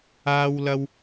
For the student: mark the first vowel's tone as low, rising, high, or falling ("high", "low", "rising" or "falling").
high